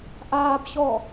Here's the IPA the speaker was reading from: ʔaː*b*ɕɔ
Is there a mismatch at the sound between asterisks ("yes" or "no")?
no